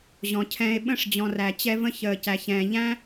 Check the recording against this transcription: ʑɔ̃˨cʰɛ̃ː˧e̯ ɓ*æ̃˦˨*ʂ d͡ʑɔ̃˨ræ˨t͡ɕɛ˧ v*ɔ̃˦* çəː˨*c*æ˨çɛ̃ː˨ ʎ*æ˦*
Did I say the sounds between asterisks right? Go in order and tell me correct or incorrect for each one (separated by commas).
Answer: incorrect, incorrect, correct, incorrect